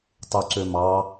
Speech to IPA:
tˤ u ǀ ø m ɑ

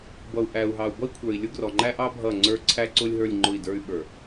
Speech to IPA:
b ʌ˨ u̯ ʔ æ˨ u̯ ɦ ɑ˨ u̯ b ʌ˦ i̯ kʷʰ ə˞˨ i̯ lʲ ʊ˦ ɡ r ɔ˨ ŋ͡ǃ æ˦ ʔ ɑ˦ bʱ ʌ˦˨ ŋ͡ǀ ə˞˦ ǀʰ æ˦ ǀ ʊ˦ lʲ ɦ ə˞˦˨ lʲ ŋ͡ǃ ʊ˦˨ i̯ d ə˞˦ y̯ ɓ ə˞˨

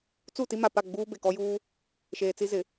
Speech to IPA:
t͡s u˦˨ t i˦ m a˨ p a˦˨ ɡ͡b uː˦ b e˨ k ɔ˦ j uː˦ | ʃ eː˨ t͡s i˦ z ɪ˨

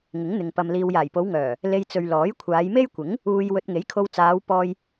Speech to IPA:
ŋ ɪ˨˥ ŋ n̪ ɪ˨ ŋ p ɐ˧ m l iː˧ w j aː˨˩ j p o˨˧ w ŋ œː˨˩ | l e˧ j t͡s ɵ˨ ɥ l ɔː˨˥ j kʷʰ aː˨˧ j m e˥ j kʷ ɪ˨˥ ŋ | uː˧ j w ɵ˧ t̚ ŋ e˨˥ j kʰ o˧ w t͡s aː˨˧ w p ɔː˧ j

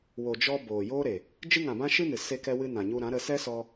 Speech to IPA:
w o˨ d͡ʒ ɔ˧ b oː˨ j oː˦ ɾ e˨ | d͡ʒ ɨ˧ ŋ ã˨ b ã˧ ʃ ɨ˦ n ɨ˨ s e˧ k ɛ˧ w ɨ˧ n ã˨ ɲ u˧ ɾ ã˨˦ ɾ ə˧ s ɛ˦ s ɔ˧

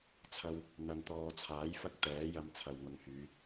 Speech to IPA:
t͡sʰ ɐ˧ w | n̪ ɐ˨ n t̪ ɔː˨ t͡sʰ aː˨˥ j f ɐ˥ k̚ t̪ ɛː˨˥ j ɐ˧ m t͡sʰ ɐ˨ w ŋ ʊ˨˧ ŋ h yː˨˧

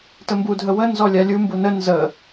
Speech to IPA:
t ə m b u dʱ ə w ə n z ɔ lʲ a lʲ u m b u n ə n z ə

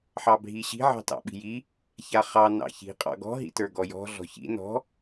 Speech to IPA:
ħ ɑ bʱ i ɕ i̤ ʕ ɑ̤ t ɑ̰ ɓ i̤ j i | ç a χ ɑ n ɑ̰ ç i̤ qʼ ɑ̰ ɡ ɔ̤ ɦ ḭ t ə˞ ɡ ɔ j ɔ̤ ɮ ɔ̤ ç ḭ n ɔ̤

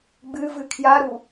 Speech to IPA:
ɡ͡b ɨ v ɨ kʰ j a ɾ u

